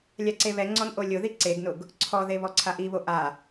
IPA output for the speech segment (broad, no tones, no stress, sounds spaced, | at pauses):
lʲ a ǀ e β ɛ ŋ͡ǀ ɔ n ʔ o lʲ ʊ ð i ǀ e ɡ n ʊ ɡ | ǀʰ ɔ ð e β ɔ ǀʰ a ʔ i β o ʔ a